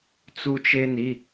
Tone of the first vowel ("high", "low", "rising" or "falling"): high